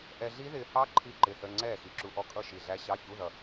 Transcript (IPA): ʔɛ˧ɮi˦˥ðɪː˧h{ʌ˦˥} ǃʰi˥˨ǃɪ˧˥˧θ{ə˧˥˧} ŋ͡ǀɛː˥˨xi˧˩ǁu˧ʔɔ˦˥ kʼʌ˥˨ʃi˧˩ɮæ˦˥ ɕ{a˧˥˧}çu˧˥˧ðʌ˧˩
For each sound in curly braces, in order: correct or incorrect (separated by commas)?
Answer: incorrect, correct, incorrect